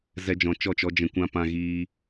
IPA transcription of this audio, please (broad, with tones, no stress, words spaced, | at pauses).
zɛ˦d͡ʒɔ̃˧t͡ʃɔ˦˨t͡ʃɔ˦ d͡ʒɛ̃˧kʷã˦ pã˦ɣiː˦